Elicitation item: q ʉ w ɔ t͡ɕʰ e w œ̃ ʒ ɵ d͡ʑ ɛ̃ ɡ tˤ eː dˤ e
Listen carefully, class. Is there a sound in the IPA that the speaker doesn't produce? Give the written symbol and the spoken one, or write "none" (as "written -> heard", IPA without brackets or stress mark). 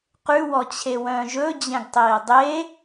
none